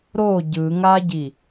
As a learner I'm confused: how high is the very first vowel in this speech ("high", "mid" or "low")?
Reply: mid